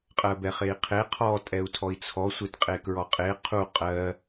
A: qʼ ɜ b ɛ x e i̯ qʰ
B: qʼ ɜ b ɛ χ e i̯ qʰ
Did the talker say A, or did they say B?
B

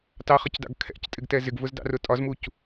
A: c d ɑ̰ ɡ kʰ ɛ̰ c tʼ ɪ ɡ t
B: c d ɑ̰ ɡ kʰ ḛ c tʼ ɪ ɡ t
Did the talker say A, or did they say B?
A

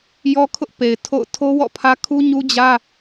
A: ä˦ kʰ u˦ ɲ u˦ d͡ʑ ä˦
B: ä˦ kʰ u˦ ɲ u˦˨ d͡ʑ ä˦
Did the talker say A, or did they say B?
A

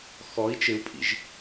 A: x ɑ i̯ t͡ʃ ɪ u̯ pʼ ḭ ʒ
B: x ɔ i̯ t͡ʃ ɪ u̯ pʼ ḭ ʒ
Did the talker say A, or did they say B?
B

